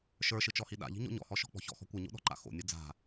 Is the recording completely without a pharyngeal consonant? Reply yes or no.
yes